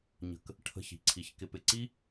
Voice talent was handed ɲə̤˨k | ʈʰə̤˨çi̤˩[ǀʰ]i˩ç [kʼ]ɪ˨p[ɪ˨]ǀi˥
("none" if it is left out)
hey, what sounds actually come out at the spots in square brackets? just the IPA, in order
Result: ǀʰ, k, ɪ˨

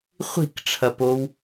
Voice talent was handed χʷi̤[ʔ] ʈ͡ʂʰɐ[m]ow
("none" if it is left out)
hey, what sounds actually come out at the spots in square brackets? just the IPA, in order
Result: k, p

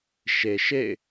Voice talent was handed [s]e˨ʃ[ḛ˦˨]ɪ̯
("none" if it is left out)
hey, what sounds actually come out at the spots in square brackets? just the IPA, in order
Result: ʃ, ḛ˦˨

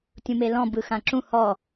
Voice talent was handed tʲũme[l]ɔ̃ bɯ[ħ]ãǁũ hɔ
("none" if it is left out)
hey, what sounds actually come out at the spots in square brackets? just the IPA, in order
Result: l, x

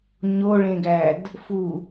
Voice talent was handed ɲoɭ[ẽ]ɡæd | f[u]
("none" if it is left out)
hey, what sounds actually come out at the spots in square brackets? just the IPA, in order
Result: ẽ, u

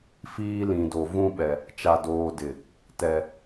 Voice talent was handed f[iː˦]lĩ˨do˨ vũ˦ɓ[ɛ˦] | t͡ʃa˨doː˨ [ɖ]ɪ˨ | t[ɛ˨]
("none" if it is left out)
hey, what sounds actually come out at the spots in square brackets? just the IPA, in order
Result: iː˦, ɛ˨, d, ɛ˨

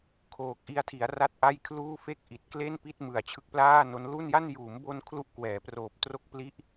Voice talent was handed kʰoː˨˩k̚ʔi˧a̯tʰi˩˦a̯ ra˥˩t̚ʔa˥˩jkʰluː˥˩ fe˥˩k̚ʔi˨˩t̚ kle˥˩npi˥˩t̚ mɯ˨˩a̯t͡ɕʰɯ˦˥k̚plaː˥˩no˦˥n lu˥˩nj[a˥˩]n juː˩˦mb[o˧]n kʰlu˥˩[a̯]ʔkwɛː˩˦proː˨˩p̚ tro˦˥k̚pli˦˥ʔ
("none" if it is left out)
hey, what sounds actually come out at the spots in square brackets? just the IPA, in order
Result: a˥˩, o˧, none

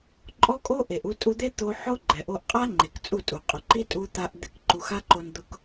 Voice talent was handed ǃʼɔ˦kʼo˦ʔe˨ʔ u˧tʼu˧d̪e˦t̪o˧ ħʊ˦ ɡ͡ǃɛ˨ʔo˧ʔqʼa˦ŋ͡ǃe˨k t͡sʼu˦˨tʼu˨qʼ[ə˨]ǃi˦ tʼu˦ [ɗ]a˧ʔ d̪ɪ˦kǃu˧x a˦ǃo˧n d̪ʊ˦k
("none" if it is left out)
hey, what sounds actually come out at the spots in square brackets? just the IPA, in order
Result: ʊ˨, t̪

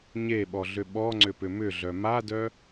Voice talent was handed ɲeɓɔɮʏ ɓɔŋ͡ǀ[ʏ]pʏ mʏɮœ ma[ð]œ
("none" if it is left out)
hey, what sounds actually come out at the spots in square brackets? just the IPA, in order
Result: ʏ, d

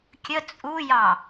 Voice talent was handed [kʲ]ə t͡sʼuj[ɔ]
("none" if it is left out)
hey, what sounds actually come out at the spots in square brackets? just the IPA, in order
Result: kʲ, ɑ

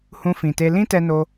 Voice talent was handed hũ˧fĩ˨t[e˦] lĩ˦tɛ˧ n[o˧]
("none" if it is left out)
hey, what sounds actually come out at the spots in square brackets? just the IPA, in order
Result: e˧, o˧

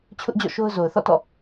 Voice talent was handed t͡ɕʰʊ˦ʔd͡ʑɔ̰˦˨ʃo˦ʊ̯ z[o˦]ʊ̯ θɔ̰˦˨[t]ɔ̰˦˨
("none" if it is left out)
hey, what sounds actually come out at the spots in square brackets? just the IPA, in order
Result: o˨, t

